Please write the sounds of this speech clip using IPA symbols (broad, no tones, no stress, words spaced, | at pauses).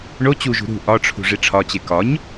ɳo t͡ɕuʒṳ ɾṳ ʔɒʈ͡ʂʰṳ ʐiʈ͡ʂʰɒt͡ɕe kɒɲ